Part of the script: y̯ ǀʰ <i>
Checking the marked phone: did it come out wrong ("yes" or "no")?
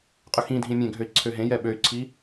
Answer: no